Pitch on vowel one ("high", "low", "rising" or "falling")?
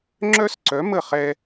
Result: high